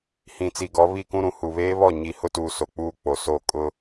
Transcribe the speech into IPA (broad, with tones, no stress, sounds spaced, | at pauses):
h ĩ˨ t͡s i˨ ɡ ɔ˨˦ β i˦˨ k ũ˦ ɾ ũ˨ h u˨ β eː˦ β ɔ˦˨ ɲ i˨ h ʊ˦ t uː˨ s o˨ k͡p uː˦ k͡p o˨ s o˦˨ kʼ ʊ˦